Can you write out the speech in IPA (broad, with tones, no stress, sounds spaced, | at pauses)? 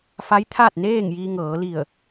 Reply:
f a˧˥ j t̪ʰ a˥˨ t̚ n eː˥˨ ŋ j iː˧ ŋ ɤː˩˧ l i˧˩ ə̯